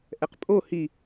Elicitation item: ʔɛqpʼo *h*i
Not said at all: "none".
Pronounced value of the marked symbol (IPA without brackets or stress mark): h